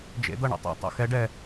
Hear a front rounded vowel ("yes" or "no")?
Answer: no